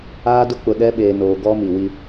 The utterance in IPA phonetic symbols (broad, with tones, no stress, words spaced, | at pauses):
aː˦dʊ˦k͡pʊ˨ ɗɛ˦ɓeː˨noː˨ɡɔ˦ mi˨ wi˦